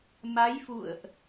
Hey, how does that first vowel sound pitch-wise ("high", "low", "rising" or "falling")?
rising